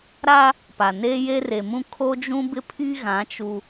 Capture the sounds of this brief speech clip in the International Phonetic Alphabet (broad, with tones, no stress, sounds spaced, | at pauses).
ɾ a˦ | p a˨ n e˦ j e˦ r e˨ m ũ˦ kʰ o˦ d͡ʒ ũ˦ b ɪ˦ pʰ i˦ ɣ ã˨˦ t͡ʃ u˦